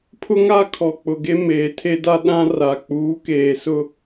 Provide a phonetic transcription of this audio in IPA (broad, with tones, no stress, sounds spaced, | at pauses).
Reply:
pʰ ʊ˦ ŋ a˦ kʰ ɔ˨ k͡p ʊ˨ ɡ e˦ m eː˨ tʰ e˦ d a˦ ɗ ã˦ r a˨ k͡p uː˨˦ k eː˨ s ʊ˦